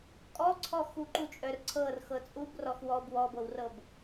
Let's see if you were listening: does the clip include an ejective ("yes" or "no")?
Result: yes